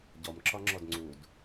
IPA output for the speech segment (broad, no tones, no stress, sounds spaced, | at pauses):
ɟ ɔ m ǁ ɒ ŋ͡ǁ ɔ d ŋ͡ǀ u d